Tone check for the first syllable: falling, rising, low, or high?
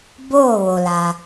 falling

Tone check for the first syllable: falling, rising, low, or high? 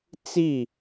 falling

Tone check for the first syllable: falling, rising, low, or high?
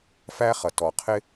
high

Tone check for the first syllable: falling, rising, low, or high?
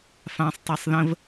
high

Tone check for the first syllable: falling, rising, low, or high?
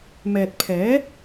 low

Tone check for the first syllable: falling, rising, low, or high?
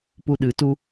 high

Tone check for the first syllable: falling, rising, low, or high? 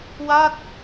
falling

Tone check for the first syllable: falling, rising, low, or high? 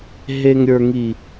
low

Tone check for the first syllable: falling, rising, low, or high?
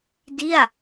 falling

